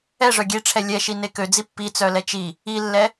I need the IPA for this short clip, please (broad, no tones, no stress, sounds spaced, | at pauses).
ɛ ʐ œ ɡʲ e ʈ͡ʂʰ ɛ lʲ ɛ ʃ i n e k ø d͡z i pː i t͡s œ l ɛ t͡ʃ i | i lː ɛ